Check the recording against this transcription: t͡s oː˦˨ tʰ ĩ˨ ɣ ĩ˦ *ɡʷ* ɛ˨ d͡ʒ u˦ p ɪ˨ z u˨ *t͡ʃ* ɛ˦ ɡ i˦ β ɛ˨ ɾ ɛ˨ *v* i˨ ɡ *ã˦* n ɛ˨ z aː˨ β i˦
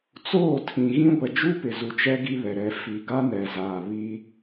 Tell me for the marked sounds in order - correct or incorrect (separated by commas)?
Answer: correct, correct, incorrect, incorrect